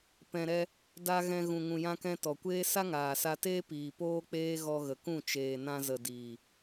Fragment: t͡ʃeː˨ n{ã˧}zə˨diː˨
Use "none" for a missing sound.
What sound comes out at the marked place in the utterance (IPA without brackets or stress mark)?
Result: ã˧